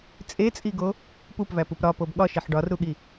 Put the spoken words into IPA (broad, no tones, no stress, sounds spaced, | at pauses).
t͡sʼ e t͡sʼ i ɡ o | p u p v æ p u p ɾ ɒ p o b ɠ ɒ ʃ e ħ ɖ ɒ r ɾ u ɠ i